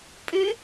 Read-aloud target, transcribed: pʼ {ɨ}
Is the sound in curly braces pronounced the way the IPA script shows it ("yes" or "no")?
yes